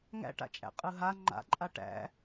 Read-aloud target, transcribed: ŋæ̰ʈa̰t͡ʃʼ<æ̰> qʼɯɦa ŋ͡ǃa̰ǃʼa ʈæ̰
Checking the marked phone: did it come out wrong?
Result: no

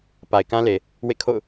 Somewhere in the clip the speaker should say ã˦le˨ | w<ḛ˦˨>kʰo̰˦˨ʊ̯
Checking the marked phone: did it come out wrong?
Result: no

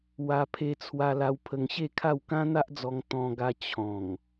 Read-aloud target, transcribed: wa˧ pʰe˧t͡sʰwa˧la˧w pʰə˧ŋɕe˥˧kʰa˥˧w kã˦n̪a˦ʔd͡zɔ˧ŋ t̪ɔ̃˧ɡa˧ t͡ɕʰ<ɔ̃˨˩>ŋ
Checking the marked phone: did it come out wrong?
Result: no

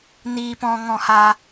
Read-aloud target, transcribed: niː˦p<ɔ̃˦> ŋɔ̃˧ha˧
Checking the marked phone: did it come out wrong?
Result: no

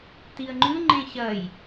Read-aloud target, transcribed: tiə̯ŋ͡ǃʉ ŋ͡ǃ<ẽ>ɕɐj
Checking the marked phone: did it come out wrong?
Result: no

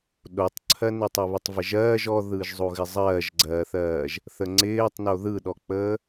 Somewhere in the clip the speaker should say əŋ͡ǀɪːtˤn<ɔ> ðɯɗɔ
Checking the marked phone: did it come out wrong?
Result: yes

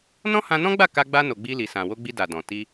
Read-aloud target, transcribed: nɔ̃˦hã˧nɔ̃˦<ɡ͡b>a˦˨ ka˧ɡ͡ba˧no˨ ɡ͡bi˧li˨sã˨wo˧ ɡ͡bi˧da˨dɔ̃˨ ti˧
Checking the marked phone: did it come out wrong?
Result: no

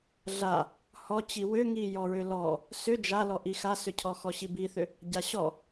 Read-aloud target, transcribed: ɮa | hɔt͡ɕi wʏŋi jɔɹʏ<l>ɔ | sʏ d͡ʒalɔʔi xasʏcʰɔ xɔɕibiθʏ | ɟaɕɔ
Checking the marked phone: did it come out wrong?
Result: no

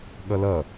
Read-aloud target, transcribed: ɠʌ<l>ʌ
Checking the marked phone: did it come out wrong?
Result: no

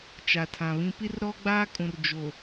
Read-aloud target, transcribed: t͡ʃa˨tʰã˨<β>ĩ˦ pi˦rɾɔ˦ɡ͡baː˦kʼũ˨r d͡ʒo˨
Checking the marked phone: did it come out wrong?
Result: no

